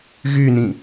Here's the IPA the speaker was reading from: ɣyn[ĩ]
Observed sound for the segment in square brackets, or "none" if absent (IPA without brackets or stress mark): ĩ